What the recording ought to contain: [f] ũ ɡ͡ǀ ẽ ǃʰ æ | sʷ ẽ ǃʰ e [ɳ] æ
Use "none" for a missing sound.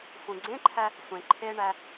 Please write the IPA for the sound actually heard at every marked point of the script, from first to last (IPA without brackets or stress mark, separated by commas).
f, ɳ